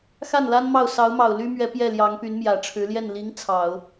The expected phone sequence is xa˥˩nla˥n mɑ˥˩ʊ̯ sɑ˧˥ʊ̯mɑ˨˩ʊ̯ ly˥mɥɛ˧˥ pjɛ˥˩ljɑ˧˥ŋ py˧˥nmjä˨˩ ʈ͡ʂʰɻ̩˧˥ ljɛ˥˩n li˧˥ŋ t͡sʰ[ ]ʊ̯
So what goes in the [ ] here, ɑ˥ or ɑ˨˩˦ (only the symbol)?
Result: ɑ˨˩˦